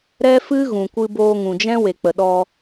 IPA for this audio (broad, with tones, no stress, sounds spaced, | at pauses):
ɾ ɛ˦ f ɨ˦ ɣ ũ˨ kʷ ɨ˧ b oː˧ ŋ ũ˨ d͡ʒ ɛ̃˦ w e˨ k͡p ə˨ ɗ ɔ˧